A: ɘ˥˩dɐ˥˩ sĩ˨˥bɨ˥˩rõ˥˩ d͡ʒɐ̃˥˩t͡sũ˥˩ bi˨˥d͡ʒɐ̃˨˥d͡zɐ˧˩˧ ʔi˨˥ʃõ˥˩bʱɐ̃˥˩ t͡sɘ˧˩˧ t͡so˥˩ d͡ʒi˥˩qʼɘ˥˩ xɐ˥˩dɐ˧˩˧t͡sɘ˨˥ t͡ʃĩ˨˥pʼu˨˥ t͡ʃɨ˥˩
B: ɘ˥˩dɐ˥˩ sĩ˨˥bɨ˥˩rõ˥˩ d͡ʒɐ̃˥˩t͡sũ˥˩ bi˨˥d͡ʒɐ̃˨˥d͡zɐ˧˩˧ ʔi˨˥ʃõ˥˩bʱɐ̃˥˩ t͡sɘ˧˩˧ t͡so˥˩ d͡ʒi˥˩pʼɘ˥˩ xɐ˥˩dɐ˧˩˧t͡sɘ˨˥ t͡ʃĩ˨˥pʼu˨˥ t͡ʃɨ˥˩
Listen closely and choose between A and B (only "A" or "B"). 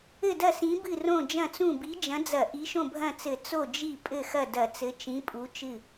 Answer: B